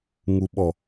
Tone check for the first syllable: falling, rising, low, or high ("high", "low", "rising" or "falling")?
low